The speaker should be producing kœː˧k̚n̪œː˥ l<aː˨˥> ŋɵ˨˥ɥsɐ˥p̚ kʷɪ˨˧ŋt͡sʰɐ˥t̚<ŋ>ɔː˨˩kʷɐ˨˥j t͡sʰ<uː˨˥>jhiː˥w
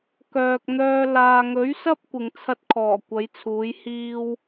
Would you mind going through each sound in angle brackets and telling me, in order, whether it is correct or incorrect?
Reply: incorrect: aː˧, incorrect: kʰ, correct

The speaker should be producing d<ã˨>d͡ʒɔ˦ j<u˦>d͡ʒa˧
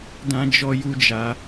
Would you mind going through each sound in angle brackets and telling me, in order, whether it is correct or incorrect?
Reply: incorrect: ã˦, correct

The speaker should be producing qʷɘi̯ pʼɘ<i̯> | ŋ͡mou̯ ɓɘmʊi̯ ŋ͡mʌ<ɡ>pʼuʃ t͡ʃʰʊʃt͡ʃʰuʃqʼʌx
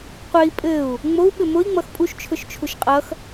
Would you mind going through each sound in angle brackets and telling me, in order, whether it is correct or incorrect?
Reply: incorrect: u̯, incorrect: x

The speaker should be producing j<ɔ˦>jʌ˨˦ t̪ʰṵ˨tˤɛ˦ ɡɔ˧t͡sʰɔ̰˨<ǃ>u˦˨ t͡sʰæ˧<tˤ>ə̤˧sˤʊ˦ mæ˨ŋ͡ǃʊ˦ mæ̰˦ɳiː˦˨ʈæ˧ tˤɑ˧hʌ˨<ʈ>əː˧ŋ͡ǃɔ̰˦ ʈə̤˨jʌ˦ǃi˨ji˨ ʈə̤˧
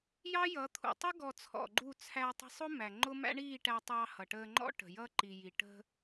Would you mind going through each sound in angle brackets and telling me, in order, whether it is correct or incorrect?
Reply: incorrect: ɑ˦, incorrect: ɡ͡ǃ, correct, correct

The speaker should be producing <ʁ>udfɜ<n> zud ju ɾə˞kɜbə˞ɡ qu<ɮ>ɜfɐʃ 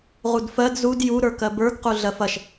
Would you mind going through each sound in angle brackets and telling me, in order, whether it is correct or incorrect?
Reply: correct, incorrect: d, correct

